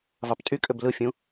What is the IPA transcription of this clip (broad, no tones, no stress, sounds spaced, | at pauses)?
v ɑ p tʼ y kʼ ø b l ɯ fʲ ũ